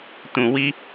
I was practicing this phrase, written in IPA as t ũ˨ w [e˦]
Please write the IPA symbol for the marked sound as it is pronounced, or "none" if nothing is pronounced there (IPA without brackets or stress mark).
i˦